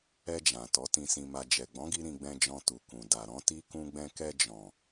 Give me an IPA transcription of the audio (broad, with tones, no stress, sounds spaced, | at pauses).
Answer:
ɛ˧ d͡ʒ ã˨ t ɔ˨˦ t ĩ˧ s ĩ˧ m a˧ d͡ʒ ɛ˨ ɡ͡b ɔ̃˨˦ ɡ i˧ ɾ ĩ˧ ɡ͡b ɛ̃˧ d͡ʒ ɔ̃˧ t u˨ k ũ˨ d a˨ ɾ ɔ̃˨˦ t i˦ k ũ˧ ɡ͡b ɛ̃˧ k ɛ˧ d͡ʒ ɔ̃˨